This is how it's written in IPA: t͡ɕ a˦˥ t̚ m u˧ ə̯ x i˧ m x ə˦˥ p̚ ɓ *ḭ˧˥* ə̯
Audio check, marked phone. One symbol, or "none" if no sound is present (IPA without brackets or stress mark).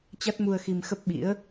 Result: ḭ˧˥